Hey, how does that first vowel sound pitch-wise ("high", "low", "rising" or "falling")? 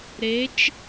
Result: rising